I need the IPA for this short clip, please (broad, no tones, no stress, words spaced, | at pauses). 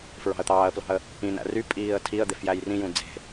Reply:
fɹɑ̤ə̯t̪ɑːə̯plɑ̤ə̯ | ĩnæ̰ ry pʼiːə̯tʰiə̯d̪ef jæjrĩjũ d͡ze̤